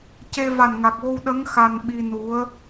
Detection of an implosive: present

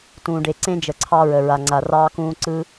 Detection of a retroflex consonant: present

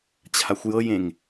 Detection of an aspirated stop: present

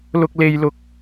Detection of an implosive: absent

